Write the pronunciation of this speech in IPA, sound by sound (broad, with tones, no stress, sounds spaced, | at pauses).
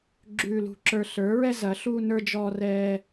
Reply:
ɡ͡ǁ ʉː˦ l ṳ˦ ǁ ə˞˦ ɬ ə˞˨˥ ɹ ɛ˦ z ɐ˨˥ ɬ uː˦ n ə˞˦ d͡ʒ ɔː˦ r ɛː˦